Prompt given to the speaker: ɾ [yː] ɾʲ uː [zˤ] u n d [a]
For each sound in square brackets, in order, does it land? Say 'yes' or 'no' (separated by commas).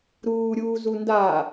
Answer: no, no, yes